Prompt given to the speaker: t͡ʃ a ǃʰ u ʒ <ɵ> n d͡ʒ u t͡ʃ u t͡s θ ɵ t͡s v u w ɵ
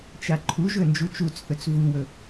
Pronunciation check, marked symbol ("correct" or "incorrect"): correct